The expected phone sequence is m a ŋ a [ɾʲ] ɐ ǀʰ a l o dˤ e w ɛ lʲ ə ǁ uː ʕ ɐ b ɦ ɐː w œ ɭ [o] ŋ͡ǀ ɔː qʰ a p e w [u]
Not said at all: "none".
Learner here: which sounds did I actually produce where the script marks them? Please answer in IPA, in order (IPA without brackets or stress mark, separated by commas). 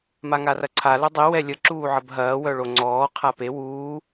r, o, uː